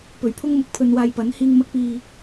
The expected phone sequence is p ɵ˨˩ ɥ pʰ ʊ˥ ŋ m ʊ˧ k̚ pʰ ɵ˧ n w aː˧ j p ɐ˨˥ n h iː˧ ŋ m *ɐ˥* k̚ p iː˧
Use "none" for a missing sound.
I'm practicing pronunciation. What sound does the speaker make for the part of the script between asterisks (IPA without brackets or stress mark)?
ɐ˥